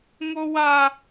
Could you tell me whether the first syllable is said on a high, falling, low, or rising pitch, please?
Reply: high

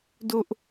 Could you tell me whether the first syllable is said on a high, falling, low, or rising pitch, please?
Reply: high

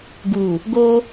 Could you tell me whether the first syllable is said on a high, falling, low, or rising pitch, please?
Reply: low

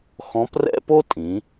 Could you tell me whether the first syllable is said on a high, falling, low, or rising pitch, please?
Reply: rising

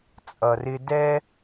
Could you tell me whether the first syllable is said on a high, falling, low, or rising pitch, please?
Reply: low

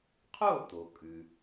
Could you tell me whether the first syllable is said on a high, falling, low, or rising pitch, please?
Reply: falling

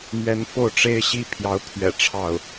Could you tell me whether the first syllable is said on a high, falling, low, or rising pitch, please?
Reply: rising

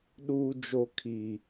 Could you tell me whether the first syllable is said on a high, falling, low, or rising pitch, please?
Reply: low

